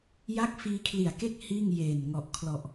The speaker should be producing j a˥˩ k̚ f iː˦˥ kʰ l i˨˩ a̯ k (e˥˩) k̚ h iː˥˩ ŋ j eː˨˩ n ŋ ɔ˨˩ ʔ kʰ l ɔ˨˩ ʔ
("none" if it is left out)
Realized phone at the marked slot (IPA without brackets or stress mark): e˥˩